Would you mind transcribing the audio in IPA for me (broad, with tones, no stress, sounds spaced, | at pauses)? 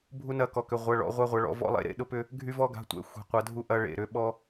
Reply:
bʱ u˥ n ɐ˥ k ɔ˧˥˧ k ʏ˧˥˧ ʁʷ ɐ˧˥˧ ɭ ɔ̰˧˥ ʁʷ a˥ ʁʷ ɐ˧˥ ɭ ɔ̰˧˥ v ɔ̰˥ lˠ ḛ˥ ɾ ḛ˧˥˧ ɗ ʊ˥ p ʏ˥ | ɡʱ y˥ v ɔ˥ ɡ a̤˧˥˧ tʷ ɛ̰˧˥˧ xʷ e̤˧˥ qʷ ɐ˧˥ dʱ u˥ ʔ ɐ˥ ɭ ḛ˧˥˧ ɾ ʏ˧˥ ɓ ɔ˥